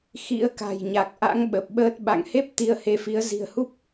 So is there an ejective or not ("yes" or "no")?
no